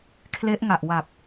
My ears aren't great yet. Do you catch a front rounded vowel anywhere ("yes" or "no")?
no